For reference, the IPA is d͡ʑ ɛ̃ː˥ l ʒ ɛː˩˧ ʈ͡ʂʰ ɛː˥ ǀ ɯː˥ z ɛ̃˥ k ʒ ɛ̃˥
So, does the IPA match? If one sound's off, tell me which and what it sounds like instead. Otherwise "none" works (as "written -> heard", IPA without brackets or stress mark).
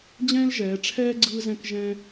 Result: ǀ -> ɡ͡ǀ